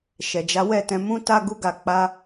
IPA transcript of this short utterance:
ʃ ɛ˨ d͡ʒ a˨˦ w ɛ˦˨ t ɛ̃˨˦ m ũ˦ t a˦ ɡ u˦ ɡ a˧ k͡p a˦

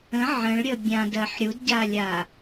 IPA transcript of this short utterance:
ə̃ ʕ ə̃ ɭ ɾʲ ə bʲ ã d ɜ ħ ɾʲ u d ɟ a lʲ a

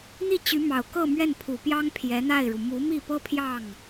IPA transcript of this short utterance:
n̪ i˥˩ t͡ɕ y˧˥ m ɑ˨˩ ʊ̯ k ɤ˥˧ m ɥ ɛ˥˩ n pʰ u˨˩ p j ɑ˥ ŋ pʰ j ɛ˧˥ n̪ a˥˩ ɪ̯ ɻ u˩ m u˧˥ m i˥˩ p ɤ˥ pʰ j ɑ˥˩ ŋ

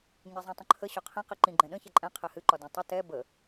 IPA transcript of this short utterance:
ɲ ɛ zˤ ĩ tˤ ə̃ ǃʰ ə ɕ ɒ qʰ ĩ q i ǃ ĩ ɡ͡ǃ ɛ̃ ɗ ə̃ ç ɛ ǃʼ ɛ̃ qʰ ɛ h ɨ ǃ ɒ d ɛ̃ tˤ ə t ɛ b ə

